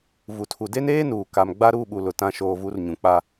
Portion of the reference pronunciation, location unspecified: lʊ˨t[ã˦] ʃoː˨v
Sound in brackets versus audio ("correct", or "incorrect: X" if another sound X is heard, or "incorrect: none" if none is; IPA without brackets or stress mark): incorrect: ã˦˨